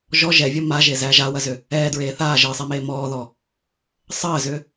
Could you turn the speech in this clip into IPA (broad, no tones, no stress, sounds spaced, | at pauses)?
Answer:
ʒ ɔ ʒ ɛ vʲ ɐ m a ʒ e z æ ʒ a w ɐ z ʏ | ɛː d ɹ eː θ aː ʒ əː sˤ ɛ m eː m ɔː ð ɔ | sˤ əː z ʏ